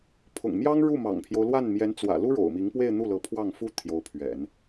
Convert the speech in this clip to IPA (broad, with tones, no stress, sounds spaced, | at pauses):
pʰ ʊ̰˨˩ ŋ m j ɑ˥ ŋ ɻ u˥˩ m ɑ̰˨˩ ŋ pʰ j o˦ ʊ̯ l w a˥˩ n m j ɛ˧˥ n t͡s w ä̰˨˩ l u˥ ɻ o̰˨˩ ʊ̯ m i˧˥ ŋ p w e˥˧ ɪ̯ n̪ u˥˩ l ɤ˧˥ pʰ w ɑ˥˩ ŋ f u˥ t̪ʰ j o˧˥ ʊ̯ pʰ ɥ ɛ̰˨˩˦ n